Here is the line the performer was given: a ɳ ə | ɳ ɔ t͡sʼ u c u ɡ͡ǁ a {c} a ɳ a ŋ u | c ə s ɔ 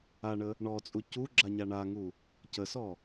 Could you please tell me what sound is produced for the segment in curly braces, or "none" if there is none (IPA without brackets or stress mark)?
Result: ɲ